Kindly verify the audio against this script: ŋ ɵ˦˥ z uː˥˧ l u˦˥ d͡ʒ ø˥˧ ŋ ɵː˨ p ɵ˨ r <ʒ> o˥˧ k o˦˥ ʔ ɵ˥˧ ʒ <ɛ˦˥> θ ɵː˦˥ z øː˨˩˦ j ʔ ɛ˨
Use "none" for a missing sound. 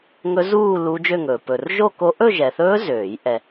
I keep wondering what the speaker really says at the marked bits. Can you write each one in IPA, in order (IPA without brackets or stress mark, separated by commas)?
ʒ, ɛ˨